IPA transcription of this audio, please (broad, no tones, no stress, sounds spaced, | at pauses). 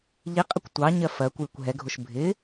ʎ i qʼ ɪ kʷ tʷ ɑ ɲ ɜ f ɜ kʷ j ɪ kʷ ɦ ɛ ɡʱ ʊ ʃ bʱ ɪ